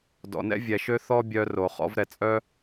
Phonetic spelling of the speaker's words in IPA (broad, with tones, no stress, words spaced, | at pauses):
dɔ̰˨ nɛ̰˦vʲɛ˨ʃø˦ θɔ˦bʲœ˧ ro˨ χɔ̰˧vɾɛ˨t͡sʼœ˦